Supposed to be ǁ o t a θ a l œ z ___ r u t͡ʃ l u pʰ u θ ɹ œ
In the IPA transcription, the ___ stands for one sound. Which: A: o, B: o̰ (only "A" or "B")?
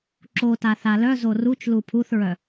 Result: A